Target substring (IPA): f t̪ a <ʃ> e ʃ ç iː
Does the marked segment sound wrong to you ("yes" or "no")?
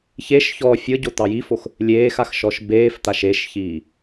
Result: no